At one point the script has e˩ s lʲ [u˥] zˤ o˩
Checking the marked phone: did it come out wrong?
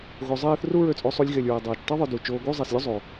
no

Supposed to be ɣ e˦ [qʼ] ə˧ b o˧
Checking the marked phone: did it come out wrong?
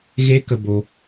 yes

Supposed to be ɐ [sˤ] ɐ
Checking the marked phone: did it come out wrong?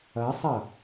no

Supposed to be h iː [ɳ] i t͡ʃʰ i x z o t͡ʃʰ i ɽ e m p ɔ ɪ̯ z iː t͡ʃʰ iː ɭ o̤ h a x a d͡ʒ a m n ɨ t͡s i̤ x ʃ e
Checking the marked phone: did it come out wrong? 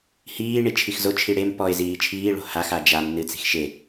no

